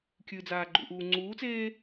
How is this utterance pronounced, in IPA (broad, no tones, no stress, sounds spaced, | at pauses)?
kʲ ɨ d͡z aː ɡ͡ǃ ṵ ʔ uː ŋ͡ǀ uː t͡s eː